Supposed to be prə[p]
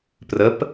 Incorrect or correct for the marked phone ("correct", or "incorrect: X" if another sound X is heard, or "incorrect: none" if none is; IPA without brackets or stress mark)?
correct